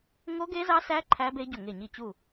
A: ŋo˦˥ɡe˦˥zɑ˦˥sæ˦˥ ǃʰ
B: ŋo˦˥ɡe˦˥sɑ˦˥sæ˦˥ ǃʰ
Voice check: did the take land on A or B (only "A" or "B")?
A